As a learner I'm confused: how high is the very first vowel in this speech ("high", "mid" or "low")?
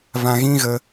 low